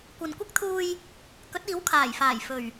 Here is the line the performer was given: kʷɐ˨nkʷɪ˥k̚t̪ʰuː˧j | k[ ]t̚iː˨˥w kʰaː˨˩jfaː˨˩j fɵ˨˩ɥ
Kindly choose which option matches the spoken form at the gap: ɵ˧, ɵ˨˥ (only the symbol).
ɵ˨˥